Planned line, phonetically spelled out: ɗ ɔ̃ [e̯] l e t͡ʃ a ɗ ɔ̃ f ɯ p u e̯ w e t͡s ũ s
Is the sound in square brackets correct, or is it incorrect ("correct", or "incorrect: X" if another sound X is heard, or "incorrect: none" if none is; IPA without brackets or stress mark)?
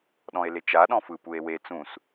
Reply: correct